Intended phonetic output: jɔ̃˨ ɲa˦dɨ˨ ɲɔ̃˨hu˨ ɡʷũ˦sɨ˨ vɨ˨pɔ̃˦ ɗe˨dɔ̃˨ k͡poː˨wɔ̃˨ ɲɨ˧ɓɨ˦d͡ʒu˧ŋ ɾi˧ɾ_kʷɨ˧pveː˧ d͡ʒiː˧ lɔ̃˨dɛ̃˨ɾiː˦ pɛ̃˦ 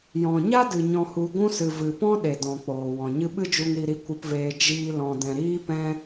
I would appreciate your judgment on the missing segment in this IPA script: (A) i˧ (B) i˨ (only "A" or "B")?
A